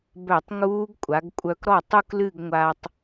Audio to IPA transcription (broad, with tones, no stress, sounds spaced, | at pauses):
b œ˧˩˧ tˤ ŋ uː˦˥ ɡ kʷʼ a˩˧ ɡ kʷʼ œ˧ k ɾ ɔ˥˩ tˤ u˥˧ k l ɨ˥˧ ɡ ŋʷ a˧ tˤ